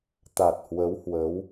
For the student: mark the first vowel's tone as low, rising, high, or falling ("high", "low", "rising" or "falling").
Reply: low